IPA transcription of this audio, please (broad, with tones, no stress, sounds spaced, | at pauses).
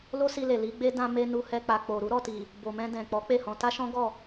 l o˦ s i˧ l e˨ l i˨˦ ɡ͡b e˦ d ã˧ m e˧ n u˧ h ɛ˧ k͡p a˨ k͡p o˨ ɾ u˨˦ ɾ ɔ˦˨ t i˨ | b o˨ m ɛ̃˧ d ɛ̃˨ k͡p ɔ˨˦ k͡p e˦˨ h ɔ̃˧ t a˦ ʃ ɔ̃˦ ɡ ɔ˦˨